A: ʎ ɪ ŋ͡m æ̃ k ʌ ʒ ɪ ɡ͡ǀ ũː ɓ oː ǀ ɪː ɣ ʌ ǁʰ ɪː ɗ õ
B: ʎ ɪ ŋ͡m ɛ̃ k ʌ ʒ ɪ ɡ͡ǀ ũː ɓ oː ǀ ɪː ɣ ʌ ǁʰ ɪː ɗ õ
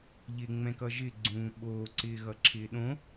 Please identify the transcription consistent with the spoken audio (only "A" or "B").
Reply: B